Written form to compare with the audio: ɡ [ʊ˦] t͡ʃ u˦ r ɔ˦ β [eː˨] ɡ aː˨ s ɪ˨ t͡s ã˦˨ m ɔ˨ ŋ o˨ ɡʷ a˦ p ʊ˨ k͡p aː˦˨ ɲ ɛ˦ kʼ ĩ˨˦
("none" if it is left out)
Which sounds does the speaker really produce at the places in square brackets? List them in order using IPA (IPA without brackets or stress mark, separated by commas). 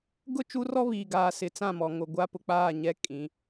ʊ˦˨, iː˨